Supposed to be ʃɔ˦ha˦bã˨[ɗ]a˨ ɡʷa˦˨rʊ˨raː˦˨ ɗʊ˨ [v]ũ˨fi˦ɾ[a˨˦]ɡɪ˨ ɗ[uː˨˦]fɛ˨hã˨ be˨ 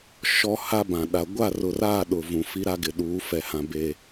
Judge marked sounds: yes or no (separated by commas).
yes, yes, no, yes